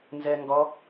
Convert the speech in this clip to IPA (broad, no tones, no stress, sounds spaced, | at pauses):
n z ɛ ŋ ɡ ɔ